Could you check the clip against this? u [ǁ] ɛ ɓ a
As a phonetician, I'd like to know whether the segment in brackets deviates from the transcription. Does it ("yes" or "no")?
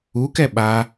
yes